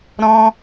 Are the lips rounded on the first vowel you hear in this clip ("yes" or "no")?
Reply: yes